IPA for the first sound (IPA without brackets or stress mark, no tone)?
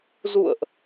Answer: z